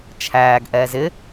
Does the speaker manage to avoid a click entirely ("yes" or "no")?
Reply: yes